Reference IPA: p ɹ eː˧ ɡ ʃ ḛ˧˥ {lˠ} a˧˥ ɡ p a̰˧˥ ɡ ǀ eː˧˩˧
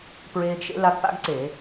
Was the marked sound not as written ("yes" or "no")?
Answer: yes